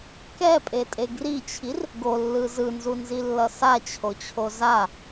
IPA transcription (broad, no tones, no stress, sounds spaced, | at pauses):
k ɛ pʼ e tʼ e ɡ r i t͡ɕʰ i r | ɡ o lː ɯ z ɯ n z u n z i lː ʌ s a t͡ɕʰ o t͡ɕʰ o z a